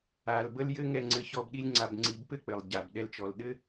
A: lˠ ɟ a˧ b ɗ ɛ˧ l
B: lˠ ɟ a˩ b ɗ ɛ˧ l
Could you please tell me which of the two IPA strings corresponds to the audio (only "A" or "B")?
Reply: B